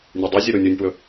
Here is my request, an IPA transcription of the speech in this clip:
nʲ e dˤ u zʲ ɘ ɾ u nʲ u nʲ p w ɵ

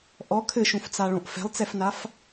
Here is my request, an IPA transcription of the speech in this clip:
ʔ ɔ kʰ ɘ ʃ ũ f t͡s a ɭ õ ʔ f ɛ̤ lˠ t͡s ɛ f n a f

